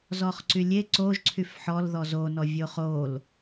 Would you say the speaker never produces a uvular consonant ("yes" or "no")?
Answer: no